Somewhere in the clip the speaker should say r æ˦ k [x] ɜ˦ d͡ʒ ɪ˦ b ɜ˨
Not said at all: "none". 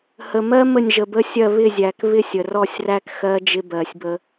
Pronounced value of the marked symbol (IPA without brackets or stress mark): x